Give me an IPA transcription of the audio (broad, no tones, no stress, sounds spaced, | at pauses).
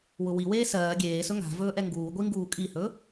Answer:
w ʊ w i w eː s ɜː ɡʲ eː s ɵ ŋ a̤ v ɵː ʔ ɛ ŋ ɡ uː ɡʷ i ŋ ɡ uː kʼ i h ɵ